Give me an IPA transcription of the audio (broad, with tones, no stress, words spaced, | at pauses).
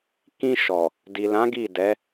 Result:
kĩ˧ ʃɔ˨ | di˨lã˨˦ ɡi˦˨dɛ˨˦